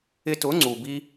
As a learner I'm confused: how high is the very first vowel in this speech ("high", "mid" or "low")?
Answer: high